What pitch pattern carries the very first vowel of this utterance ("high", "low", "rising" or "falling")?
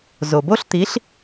low